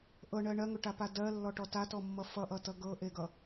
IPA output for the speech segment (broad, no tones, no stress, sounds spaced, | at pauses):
ʔ ɤ ɳ ɜ ɳ ɜ ŋ ɵ ʈ a p a d ɜ lː ɔ ʈ ɔ t a t ɔ mː ʌ f ʌ ʔ ʌ t ʌ ɡ ɤ ʔ e ɡ ʌ